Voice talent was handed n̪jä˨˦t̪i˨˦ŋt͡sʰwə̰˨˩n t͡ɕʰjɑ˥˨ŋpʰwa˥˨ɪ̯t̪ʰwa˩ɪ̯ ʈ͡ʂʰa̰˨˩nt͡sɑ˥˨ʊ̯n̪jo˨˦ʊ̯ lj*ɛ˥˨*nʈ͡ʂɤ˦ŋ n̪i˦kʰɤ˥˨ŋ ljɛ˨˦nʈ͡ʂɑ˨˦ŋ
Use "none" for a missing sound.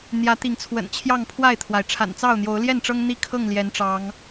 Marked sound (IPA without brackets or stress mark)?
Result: ɛ˥˨